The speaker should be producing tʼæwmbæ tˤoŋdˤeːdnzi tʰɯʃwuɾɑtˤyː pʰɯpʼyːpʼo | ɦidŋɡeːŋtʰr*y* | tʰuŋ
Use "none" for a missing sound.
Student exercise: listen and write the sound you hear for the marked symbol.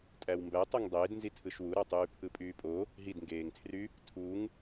y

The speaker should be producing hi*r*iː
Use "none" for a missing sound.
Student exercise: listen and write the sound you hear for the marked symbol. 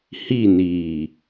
n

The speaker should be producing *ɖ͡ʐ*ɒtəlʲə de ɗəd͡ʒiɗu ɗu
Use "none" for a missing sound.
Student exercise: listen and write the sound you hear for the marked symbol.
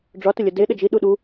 ɖ͡ʐ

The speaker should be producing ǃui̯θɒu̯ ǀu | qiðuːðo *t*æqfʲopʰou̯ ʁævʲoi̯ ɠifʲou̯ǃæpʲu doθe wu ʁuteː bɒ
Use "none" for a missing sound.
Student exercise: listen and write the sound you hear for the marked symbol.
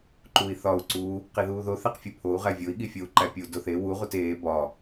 θ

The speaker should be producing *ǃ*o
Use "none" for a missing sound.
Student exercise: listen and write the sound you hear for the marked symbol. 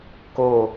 k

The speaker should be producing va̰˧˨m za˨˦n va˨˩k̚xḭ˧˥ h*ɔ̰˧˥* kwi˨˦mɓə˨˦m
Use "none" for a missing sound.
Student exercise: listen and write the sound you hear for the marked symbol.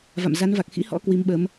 ɔ̰˧˥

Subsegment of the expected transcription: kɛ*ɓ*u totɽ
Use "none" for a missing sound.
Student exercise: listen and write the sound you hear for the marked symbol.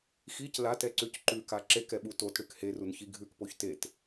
ɓ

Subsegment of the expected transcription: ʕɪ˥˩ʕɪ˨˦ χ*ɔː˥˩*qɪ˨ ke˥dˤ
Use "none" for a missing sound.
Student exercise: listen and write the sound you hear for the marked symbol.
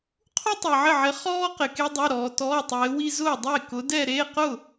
ɔː˥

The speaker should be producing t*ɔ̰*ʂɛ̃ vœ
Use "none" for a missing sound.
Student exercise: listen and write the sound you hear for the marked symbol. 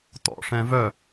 ɔ̰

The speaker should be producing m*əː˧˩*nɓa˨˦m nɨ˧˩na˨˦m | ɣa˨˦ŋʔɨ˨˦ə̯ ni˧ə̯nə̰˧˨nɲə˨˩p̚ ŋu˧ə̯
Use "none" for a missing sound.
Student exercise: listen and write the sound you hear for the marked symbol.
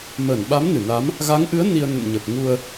əː˧˩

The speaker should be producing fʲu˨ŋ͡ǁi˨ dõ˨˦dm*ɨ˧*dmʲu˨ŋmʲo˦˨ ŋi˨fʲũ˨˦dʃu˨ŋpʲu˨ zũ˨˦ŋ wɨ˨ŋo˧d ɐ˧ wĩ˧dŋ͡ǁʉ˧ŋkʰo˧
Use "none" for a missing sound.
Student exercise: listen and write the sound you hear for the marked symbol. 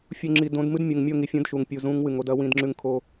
ɨ˦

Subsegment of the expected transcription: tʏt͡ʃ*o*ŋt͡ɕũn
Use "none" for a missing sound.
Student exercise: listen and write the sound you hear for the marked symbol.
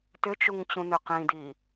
u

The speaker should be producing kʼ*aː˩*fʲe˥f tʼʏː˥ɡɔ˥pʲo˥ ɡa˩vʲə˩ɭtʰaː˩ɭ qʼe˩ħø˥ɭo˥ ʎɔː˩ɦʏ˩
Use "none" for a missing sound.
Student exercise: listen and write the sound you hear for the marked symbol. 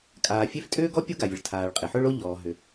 aː˩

